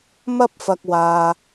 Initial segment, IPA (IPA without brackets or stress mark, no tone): m